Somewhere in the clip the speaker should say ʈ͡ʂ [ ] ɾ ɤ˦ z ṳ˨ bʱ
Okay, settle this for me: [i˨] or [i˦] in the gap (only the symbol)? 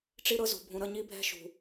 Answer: i˦